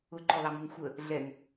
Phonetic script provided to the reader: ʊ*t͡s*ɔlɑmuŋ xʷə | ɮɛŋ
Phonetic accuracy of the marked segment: incorrect: ǃ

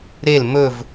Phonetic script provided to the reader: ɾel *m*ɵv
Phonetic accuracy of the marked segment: correct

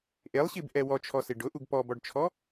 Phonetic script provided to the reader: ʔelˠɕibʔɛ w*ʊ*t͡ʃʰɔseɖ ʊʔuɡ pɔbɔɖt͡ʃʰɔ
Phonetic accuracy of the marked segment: incorrect: ɔ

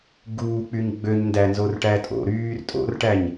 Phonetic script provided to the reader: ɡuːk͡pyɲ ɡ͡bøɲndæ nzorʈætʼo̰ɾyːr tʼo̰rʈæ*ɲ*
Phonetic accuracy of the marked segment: correct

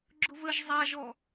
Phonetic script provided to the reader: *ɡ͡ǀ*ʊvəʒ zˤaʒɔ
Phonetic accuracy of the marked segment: incorrect: ɡ͡ǁ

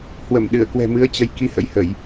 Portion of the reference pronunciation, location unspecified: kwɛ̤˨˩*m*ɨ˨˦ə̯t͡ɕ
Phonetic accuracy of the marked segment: correct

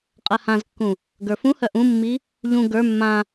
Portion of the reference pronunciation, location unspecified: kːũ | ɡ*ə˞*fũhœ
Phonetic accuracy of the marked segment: correct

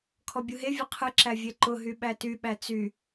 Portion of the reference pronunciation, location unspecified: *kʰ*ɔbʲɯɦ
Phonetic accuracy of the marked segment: correct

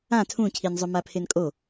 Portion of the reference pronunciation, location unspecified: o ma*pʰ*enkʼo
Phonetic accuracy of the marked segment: correct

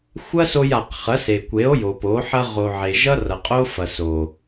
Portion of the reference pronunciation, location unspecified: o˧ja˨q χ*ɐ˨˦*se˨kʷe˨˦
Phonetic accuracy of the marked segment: correct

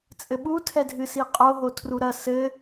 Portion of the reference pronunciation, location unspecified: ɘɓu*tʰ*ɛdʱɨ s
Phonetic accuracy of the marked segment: correct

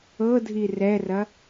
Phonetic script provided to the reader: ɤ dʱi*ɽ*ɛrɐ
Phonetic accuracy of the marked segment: incorrect: r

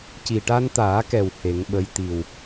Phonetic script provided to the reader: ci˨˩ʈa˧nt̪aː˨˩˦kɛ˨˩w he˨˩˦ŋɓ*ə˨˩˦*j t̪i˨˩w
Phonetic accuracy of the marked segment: incorrect: ə˧˥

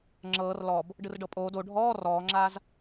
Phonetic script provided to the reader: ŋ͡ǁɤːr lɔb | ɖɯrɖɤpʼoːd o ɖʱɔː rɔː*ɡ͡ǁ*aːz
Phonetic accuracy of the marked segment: incorrect: ŋ͡ǁ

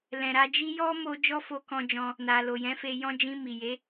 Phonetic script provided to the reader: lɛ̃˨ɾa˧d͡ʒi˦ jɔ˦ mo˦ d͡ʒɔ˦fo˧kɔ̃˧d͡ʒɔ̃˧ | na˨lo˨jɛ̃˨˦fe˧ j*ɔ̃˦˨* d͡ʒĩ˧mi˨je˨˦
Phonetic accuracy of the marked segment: incorrect: ɔ̃˦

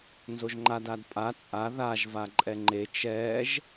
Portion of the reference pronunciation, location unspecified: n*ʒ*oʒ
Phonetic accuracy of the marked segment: incorrect: z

